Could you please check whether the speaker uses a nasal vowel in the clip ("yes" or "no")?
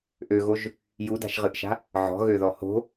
no